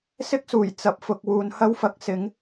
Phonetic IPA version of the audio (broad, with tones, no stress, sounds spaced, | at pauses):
s ɪ˥ k̚ s uː˨˩ j t͡s ɐ˨ p̚ f ʊ˨ k̚ w uː˨ n h ɐ˥ w f ɐ˨˥ k̚ s ɪ˨˥ ŋ